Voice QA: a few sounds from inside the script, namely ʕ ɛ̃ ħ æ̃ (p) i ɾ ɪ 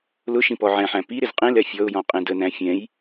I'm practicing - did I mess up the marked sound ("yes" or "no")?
no